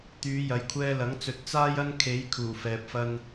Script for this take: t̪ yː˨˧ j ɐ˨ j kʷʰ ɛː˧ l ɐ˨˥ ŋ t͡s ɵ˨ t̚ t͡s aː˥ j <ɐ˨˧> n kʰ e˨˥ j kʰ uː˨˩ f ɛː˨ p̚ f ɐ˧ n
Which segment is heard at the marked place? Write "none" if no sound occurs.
ɐ˥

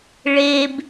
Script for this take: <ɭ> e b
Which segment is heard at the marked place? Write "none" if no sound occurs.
ɭ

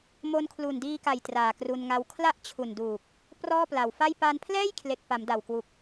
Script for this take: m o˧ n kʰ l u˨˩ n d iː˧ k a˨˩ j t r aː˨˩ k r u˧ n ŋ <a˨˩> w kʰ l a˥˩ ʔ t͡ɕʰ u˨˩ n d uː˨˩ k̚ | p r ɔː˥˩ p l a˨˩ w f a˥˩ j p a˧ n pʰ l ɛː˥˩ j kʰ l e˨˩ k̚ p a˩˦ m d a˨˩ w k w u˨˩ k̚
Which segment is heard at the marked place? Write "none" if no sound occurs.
a˦˥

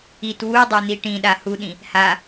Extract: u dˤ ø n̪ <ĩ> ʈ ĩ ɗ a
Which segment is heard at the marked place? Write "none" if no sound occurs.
i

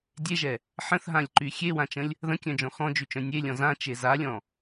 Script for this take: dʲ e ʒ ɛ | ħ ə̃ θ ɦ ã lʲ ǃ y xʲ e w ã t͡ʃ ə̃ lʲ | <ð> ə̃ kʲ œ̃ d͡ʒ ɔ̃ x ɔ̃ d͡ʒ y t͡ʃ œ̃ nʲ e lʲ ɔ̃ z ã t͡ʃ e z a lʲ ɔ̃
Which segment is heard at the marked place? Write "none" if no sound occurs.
ð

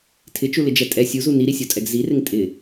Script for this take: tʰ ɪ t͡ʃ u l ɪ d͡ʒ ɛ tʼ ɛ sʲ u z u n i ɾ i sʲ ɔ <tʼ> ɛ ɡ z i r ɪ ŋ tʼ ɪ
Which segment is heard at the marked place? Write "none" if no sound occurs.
tʼ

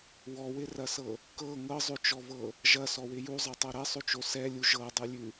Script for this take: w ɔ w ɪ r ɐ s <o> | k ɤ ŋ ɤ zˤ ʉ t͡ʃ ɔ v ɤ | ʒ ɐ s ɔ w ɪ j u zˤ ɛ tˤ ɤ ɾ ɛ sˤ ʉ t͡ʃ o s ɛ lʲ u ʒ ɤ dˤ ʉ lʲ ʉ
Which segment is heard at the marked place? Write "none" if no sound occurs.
ɤ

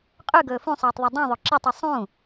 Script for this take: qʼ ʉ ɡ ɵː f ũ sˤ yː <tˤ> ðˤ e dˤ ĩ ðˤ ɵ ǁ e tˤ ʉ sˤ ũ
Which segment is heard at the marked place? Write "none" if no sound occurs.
tˤ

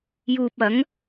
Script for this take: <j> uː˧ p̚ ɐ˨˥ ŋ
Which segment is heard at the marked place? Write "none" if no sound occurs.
j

